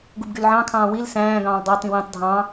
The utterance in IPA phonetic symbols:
ɡ u b ɡ y l ʕ ɑ̃ kʰ ɑ̃ː w i l s æ̃ː ɡ ɑ̃ː l dˤ ɑ t ĩ w ĩ tˤ dʱ ɑ̃

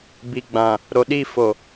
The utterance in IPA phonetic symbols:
b i˨ ɡ͡b ã˨ | ɾ o˨ ɗ i˦˨ f o˨

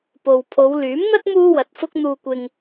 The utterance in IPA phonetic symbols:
p o˨ w pʰ o˨˧ w l yː˨˥ m n̪ ɐ˥ t̚ m uː˥ w ɐ˨˥ t̚ f ʊ˥ k̚ n̪ uː˧ kʷ ɪ˧ ŋ

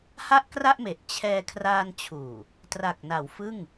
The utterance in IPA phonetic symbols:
h a˥˩ ʔ k r a˥˩ ʔ m e˨˩ ʔ t͡ɕʰ ɛː˧ kʰ r aː˧ n t͡ɕʰ uː˨˩ | t r a˨˩ k̚ n a˩˦ w f ɯ˥˩ ŋ

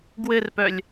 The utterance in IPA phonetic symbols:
ɡ w ɘ r p œ lʲ

